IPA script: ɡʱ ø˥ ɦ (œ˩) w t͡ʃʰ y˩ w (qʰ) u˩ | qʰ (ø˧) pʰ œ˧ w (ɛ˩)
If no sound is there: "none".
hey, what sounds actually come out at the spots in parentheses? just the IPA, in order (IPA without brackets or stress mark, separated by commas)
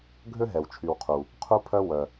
ɛ˩, qʰ, u˧, œ˩